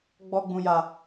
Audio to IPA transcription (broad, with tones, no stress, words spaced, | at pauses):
ɡ͡bɔ˧ɡ͡bũ˧ja˧